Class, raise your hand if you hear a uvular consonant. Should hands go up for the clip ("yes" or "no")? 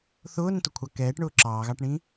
no